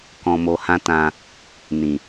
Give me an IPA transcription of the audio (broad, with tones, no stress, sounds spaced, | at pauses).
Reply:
k ɔ̃˧ m o˧ h ã˦ t ã˧ | n ĩ˨